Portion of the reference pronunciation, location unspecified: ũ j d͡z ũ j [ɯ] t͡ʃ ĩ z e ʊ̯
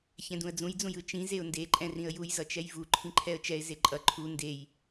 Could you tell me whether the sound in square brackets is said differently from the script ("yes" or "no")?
no